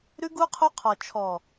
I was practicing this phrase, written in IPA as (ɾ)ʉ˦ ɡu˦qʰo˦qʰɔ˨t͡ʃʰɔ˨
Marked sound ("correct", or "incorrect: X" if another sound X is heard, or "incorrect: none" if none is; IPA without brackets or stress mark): correct